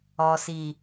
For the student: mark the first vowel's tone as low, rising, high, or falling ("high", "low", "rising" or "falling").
low